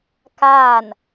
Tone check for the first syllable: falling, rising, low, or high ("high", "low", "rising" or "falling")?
falling